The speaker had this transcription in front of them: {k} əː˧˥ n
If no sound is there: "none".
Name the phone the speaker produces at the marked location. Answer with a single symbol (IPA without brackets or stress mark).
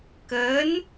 k